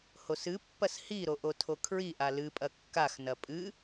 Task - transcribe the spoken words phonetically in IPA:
h o s ɨ pː ɐ s h i ɾ o ʔ o tʰ o kʰ ɹ i ʔ a l ɨ pʼ ɐ kː a x n ɐ pʼ ɨ

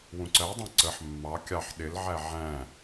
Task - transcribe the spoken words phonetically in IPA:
w ũ ǀ ɜ dˤ ɑ̃ ǀ ə ħ mː ɑ kʲ ɑ ħ ɗ ɪ l ʕ æ ʕ æ̃

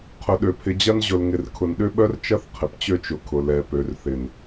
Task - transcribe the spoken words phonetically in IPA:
qʰ ʊ˨ ɗ ø˨ pʰ ɪ˨ d͡ʑ ɐ˦ n ʑ ʊ˨ l ŋ ɪ˨ r kʰ ʊ˨ n ɗ ʏ˦ ɓ œ˦ r t͡ʃ ɐ˦ θ qʰ ɪ˨ p t͡ɕ ø˦ t͡ʃ ʊ˨ kʰ ʊ˨ l ɛ˨ p ø˨ r θ ɪ˨ n

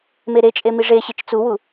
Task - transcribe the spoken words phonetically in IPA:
m e ɾ e t͡ʃʼ e m i ʐ e ɕ i t͡ʃ t͡s u w u

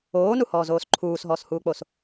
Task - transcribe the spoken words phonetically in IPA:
oː n u h ɔː z oː s ǃʰ uː s ɦ ɔː s h uː k͡p o s

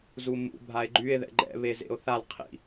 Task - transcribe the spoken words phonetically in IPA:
z u m ṵ bʱ a e̯ ɡ͡ǃ y e̯ ð ɛ̰ ɡ͡ǃ ɛ̰ β e z ḛ o̯ θ a l qʰ ḭ

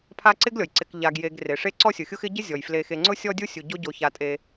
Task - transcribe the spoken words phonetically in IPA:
pʰ a˦ ǀ ɪ˥ ɡ lʲ ɔ˩ j ǀ ɪ˨ k ʎ a˨ ɡ j e˨ ɡ r e˩ ʂ e˥ ǀ ɔ˦ sʲ ʊ˩ xʲ ʊ˦ x ɪ˦ ɟ ɪ˥ zʲ ɔ˩ j f l e˨ x e˨ ŋ͡ǀ ʊ˥ sʲ ɔ˦ dʲ u˦ sʲ u˨ ɟ o˦ ɟ o˨ ç a˨ tʼ e˨

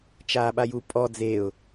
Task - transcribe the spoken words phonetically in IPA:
t͡ʃ aː ɓ a j u pʼ ɔ d͡z e ʊ̯

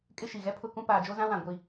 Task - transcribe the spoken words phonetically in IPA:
kʼ ɪ˦ ʃ i˨ ɣ ɛ˦ pʰ ʊ˦ k ũ˦ p aː˨ d͡ʒ o˦ z ã˦ w ã˨ ɡʷ i˦

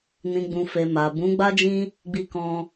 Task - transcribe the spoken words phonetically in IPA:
n ĩ˨ ɡ͡b ũ˨ f e˨ m a˨ b ũ˨˦ ɡ͡b a˦ d͡ʒ ĩ˦ | ɡ͡b i˧ k ɔ̃˧

